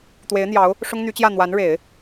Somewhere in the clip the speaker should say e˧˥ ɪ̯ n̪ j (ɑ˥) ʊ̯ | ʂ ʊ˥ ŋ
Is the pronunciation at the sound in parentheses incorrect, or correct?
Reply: incorrect